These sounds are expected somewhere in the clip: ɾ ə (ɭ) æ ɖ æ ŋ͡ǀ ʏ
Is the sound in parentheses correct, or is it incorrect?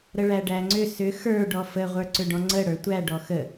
correct